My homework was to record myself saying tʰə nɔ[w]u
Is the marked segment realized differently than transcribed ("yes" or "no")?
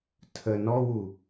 no